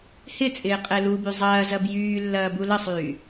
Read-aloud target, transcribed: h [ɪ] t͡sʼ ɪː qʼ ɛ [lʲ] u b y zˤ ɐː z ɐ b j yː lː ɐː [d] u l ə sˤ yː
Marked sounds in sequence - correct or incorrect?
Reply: correct, incorrect: l, incorrect: b

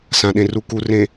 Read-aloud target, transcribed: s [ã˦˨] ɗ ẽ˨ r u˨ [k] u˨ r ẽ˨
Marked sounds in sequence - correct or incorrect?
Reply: incorrect: ã˨, correct

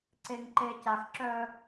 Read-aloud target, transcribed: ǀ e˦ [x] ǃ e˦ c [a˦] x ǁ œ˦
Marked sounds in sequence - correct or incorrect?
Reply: incorrect: ŋ, correct

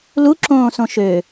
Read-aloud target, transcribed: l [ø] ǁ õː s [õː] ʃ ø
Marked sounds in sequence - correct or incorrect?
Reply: incorrect: u, incorrect: õ

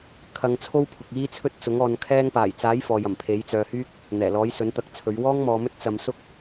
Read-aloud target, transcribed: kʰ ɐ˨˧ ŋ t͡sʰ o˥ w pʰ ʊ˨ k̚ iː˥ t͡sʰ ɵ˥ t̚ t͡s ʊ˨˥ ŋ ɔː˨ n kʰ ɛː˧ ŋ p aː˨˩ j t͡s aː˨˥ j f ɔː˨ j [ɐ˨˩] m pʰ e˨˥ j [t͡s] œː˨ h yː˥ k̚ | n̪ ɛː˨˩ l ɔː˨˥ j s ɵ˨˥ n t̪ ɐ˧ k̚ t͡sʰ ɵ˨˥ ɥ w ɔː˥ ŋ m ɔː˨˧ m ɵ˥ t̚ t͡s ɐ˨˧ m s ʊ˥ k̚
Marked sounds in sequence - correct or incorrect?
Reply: correct, correct

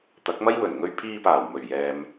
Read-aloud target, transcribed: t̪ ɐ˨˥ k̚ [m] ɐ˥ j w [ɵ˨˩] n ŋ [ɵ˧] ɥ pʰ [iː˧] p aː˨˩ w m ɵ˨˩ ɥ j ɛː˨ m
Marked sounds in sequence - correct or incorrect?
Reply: correct, correct, correct, correct

